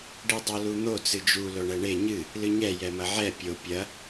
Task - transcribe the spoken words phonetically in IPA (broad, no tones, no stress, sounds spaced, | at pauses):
ɖ i dˤ o l u n̪ o t͡s ɨ d͡ʒ u l o ɳ ɛ ɳ e ɲ ɨ | l ɨ ɲ ɛ j ɛ m ɐ ʕ ɛ pʲ o pʲ ɐ